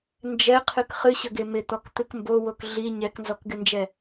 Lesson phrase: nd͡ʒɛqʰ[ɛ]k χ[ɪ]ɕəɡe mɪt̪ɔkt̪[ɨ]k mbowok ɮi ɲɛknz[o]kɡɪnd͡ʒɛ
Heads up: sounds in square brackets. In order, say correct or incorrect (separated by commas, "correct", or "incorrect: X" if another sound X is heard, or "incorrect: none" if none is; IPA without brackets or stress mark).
incorrect: ɨ, incorrect: ɨ, correct, incorrect: ɔ